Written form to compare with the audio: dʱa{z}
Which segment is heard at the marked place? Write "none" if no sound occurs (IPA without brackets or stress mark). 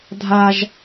ʒ